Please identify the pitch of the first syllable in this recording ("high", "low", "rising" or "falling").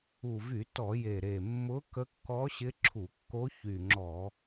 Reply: low